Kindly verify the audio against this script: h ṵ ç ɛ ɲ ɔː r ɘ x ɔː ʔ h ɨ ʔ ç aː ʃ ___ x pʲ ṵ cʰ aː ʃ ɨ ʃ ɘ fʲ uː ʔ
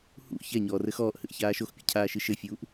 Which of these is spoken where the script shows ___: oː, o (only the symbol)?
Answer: o